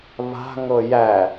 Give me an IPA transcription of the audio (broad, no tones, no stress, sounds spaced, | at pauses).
β a̤ ŋ ɤ j æ